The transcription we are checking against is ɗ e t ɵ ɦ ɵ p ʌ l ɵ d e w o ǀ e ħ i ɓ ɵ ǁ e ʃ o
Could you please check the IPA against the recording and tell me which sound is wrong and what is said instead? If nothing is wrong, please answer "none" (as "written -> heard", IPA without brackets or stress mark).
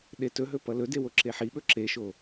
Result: ǀ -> ǁ